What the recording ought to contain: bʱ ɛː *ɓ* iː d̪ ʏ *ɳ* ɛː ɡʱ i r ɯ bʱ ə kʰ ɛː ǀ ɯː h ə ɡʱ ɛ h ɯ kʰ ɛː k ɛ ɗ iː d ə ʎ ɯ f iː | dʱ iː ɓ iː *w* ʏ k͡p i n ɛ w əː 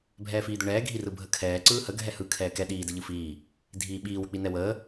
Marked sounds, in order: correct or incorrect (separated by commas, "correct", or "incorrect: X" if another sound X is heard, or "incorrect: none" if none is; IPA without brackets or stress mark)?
incorrect: f, correct, correct